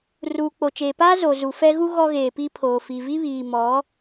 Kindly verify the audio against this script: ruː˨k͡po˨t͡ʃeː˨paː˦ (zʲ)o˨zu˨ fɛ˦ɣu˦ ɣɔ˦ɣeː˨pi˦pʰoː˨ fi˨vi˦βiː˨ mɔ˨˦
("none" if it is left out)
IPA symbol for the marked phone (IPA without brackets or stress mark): z